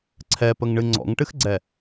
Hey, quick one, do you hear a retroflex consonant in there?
yes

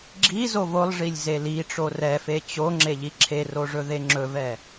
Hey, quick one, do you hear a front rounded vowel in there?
no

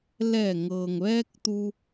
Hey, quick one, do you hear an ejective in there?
no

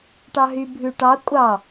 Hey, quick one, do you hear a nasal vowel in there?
no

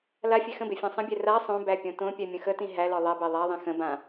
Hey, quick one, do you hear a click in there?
no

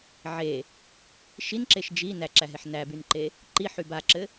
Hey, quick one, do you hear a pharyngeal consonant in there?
yes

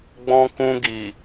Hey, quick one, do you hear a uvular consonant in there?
no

